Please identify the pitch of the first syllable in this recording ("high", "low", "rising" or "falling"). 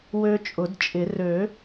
high